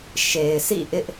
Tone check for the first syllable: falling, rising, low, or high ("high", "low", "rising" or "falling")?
low